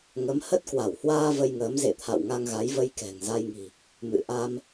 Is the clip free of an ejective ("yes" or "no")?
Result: yes